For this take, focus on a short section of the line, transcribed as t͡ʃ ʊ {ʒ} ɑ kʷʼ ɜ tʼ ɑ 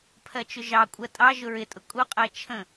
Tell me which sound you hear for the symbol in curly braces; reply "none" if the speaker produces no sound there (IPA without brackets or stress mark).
ʒ